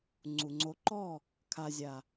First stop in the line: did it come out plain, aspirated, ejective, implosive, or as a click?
click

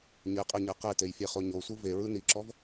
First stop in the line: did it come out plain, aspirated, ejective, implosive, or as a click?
ejective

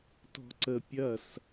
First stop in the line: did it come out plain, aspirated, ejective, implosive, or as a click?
plain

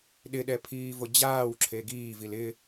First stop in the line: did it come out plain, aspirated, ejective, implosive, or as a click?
implosive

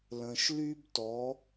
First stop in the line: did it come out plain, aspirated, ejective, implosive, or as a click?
plain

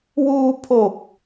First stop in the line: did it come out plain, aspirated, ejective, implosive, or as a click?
aspirated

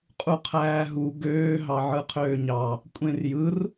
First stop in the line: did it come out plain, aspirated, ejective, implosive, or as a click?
ejective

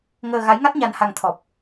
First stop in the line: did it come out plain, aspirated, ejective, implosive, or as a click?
plain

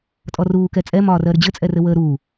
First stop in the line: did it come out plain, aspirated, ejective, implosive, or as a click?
ejective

